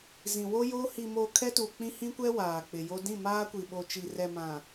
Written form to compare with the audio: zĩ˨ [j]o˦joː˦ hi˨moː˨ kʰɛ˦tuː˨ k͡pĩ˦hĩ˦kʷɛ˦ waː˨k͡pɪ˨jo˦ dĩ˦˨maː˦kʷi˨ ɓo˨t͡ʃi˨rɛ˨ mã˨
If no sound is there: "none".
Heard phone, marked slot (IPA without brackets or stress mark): w